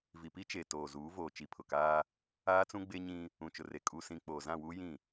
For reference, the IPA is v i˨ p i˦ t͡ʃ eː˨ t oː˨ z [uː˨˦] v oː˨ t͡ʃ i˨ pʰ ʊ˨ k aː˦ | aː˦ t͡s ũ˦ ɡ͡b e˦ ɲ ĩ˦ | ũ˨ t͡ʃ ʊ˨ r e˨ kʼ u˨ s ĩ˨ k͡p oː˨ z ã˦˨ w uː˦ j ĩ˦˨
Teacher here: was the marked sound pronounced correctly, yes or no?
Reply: yes